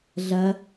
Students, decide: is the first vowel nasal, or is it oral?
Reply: oral